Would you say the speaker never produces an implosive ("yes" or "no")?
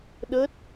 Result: no